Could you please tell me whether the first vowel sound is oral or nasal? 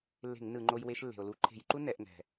oral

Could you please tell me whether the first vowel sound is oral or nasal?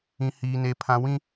nasal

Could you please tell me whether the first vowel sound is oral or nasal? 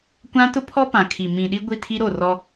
nasal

